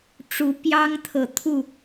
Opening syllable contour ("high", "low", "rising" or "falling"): rising